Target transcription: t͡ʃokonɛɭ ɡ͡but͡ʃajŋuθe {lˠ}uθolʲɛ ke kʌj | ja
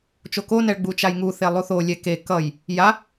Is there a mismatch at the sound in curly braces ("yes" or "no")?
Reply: no